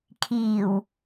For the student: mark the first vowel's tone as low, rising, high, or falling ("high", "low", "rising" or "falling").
low